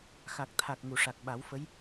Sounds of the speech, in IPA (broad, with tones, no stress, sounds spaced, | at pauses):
x a˨˩ k̚ t̪ʰ a˨˩ k̚ ŋ u˨˩˨ ʂ a˨˩ k̚ ɓ a˨˩˦ w f ə˧˥ j